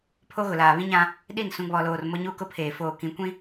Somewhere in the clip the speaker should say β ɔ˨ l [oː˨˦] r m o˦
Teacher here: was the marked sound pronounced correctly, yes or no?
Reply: no